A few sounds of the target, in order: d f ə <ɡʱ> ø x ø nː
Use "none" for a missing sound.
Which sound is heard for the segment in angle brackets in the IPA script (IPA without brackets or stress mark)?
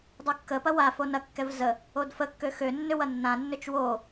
kː